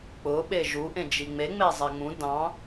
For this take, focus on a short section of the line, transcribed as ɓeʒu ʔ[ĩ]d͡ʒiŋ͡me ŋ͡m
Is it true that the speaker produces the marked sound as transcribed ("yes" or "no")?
no